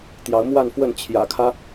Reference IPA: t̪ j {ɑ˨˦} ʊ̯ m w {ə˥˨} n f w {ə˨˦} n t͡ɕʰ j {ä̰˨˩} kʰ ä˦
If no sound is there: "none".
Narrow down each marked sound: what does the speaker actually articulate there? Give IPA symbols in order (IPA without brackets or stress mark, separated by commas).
ɑ˨˦, a˥˨, ə˥˨, ä̰˨˩